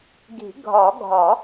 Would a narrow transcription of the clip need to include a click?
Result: no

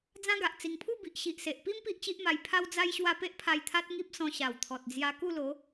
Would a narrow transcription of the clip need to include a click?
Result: no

